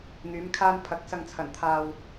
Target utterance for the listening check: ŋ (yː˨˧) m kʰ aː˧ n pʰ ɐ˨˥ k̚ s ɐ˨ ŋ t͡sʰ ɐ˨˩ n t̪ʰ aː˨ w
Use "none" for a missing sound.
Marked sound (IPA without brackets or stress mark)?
yː˨˧